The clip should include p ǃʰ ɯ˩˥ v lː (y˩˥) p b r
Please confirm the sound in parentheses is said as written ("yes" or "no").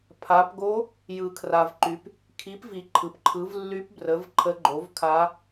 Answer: no